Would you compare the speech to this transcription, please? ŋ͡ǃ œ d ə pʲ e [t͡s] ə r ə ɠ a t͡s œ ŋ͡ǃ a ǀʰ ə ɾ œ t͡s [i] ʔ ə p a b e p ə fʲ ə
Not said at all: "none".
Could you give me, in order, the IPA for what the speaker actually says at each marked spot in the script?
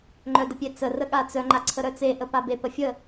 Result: t͡s, e

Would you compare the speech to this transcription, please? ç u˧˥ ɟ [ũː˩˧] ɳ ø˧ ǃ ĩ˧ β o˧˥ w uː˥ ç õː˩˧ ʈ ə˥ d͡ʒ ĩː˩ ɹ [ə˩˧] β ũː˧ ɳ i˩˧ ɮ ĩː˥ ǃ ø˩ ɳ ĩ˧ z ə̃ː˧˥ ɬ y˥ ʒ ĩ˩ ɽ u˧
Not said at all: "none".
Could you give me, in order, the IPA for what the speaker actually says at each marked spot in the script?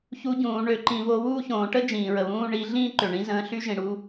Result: ũː˩˧, ə˩

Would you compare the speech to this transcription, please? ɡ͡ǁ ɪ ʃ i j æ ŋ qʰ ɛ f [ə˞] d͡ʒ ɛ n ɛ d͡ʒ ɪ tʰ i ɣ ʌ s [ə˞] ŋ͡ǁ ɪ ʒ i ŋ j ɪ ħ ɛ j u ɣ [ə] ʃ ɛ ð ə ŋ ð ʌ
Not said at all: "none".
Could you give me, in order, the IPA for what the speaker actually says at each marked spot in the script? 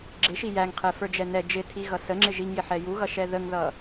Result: ə˞, ə, ʌ

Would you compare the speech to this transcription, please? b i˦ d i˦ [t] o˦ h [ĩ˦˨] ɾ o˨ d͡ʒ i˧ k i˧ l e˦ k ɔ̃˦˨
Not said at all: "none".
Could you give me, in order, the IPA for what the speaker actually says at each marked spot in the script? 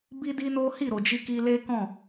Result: n, i˦˨

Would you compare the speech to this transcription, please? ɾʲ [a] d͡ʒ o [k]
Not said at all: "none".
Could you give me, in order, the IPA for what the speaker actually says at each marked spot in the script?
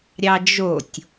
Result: ɑ, tʲ

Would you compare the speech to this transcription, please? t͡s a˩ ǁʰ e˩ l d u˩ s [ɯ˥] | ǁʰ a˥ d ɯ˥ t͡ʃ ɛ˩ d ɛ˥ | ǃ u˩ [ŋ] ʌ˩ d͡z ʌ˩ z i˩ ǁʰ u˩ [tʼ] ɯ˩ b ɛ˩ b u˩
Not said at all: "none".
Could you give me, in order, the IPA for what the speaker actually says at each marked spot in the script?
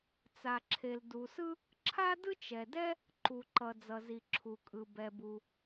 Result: ɯ˥, ǃ, kʼ

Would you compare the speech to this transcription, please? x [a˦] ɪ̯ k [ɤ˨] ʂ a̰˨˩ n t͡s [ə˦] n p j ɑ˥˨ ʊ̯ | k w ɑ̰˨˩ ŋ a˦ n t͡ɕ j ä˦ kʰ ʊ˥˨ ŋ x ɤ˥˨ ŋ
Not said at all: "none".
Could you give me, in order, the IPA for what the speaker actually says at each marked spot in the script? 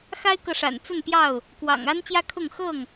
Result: a˦, ɤ˨, ə˥˨

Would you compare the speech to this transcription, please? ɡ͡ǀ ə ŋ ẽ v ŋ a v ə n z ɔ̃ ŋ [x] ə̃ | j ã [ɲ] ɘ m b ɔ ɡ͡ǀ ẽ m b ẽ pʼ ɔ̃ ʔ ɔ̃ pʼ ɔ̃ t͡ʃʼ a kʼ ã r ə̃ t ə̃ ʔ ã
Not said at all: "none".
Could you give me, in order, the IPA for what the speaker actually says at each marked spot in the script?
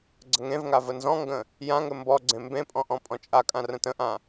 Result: ɡ, ŋ

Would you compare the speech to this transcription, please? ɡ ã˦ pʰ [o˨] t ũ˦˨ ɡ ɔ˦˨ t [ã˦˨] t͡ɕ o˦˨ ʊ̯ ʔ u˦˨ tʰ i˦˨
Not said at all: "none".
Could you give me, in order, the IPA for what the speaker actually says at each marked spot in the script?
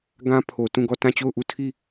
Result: o˨, ã˦˨

